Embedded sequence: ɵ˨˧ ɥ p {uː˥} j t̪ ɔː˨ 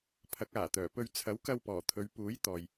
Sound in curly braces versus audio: incorrect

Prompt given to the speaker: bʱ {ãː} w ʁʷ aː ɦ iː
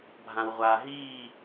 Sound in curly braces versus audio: incorrect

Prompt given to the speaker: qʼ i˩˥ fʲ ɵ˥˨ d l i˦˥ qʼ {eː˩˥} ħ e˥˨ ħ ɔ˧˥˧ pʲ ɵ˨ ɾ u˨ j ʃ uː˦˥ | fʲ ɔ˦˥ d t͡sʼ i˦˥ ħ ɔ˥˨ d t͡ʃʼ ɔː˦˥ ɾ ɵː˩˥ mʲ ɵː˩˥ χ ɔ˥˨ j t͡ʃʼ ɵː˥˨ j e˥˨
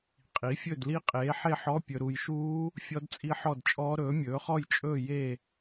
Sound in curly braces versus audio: correct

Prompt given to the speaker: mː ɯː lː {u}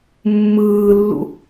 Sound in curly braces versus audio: incorrect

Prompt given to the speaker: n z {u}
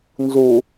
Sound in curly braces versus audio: correct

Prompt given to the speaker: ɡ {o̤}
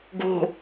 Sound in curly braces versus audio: correct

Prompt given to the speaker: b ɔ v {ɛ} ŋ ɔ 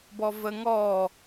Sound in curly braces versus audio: incorrect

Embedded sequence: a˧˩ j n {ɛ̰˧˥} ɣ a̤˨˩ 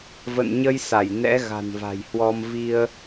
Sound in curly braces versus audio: correct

